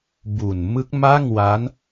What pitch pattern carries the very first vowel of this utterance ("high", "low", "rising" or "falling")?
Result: low